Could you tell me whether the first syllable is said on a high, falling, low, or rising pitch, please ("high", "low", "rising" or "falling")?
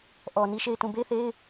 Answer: low